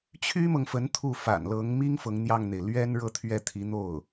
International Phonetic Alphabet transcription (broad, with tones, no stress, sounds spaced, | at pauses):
t͡ɕʰ y˥ m ɤ˨ ŋ f ə˧˥ n t̪ʰ u˥˩ f a̰˨˩ n l ɤ˧˥ ŋ m i˥ ŋ f ɤ˧˥ ŋ n̪ j ɑ˥˩ ŋ n̪ e˩ ɪ̯ l ɥ ɛ˥ n ɻ ɤ˥˧ t̪ʰ ɥ ɛ˥˩ t̪ʰ i˧˥ n̪ o˥˩ ʊ̯